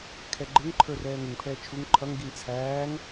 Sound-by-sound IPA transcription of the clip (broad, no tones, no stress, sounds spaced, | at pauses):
kʰ ɛ ɡ͡ǃ ɪ ŋ ǃʰ ə˞ r ɛː ŋ ɪ ŋ pʰ ɛː t͡ʃʰ u ŋ ǃʰ ʌ ŋ ɡ i ŋ t͡sʰ æː ŋ